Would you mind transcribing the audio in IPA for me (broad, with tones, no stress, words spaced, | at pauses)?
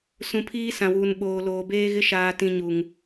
sũ˨pʰiː˦sã˨wuː˨n ɓoː˨loː˨beː˦ɣɪ˦ ʃaː˨tĩ˨ ɲu˨ŋ